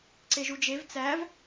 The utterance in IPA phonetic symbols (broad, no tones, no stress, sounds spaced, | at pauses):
ǀ e ʒ u d͡ʒ e v t͡s æ v